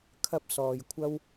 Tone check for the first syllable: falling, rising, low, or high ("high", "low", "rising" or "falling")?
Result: high